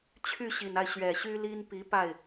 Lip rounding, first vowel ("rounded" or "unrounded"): rounded